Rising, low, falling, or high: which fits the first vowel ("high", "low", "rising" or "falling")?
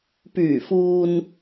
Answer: low